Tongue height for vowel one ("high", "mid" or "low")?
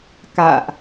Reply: low